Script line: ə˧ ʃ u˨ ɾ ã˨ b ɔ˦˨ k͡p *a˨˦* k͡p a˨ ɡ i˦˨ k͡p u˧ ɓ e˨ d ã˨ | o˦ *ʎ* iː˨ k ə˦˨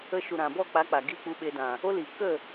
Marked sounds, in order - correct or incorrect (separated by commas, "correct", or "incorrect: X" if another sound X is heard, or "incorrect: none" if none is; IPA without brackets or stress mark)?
correct, incorrect: l